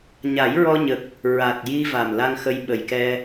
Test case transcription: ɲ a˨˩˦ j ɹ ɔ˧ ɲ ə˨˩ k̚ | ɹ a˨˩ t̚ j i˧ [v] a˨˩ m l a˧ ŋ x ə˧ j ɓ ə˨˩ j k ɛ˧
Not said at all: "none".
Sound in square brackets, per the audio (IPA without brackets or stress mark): v